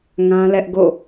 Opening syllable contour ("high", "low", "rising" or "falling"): high